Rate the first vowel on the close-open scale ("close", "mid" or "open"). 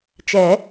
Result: mid